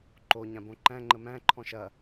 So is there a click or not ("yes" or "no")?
yes